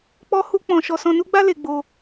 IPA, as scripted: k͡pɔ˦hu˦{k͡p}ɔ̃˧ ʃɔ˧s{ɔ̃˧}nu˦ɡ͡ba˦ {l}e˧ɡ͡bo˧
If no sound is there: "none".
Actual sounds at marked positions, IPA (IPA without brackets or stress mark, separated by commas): k͡p, ɔ̃˧, l